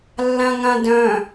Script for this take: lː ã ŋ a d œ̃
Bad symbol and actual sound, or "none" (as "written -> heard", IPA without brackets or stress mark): a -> ã